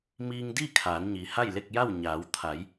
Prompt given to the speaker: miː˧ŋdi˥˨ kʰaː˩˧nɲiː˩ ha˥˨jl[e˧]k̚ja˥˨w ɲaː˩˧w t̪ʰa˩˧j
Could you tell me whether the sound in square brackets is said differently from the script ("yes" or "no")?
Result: yes